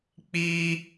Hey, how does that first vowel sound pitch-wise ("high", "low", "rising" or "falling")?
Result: high